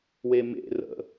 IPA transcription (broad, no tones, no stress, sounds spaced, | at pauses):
w e m ḛ r ə̰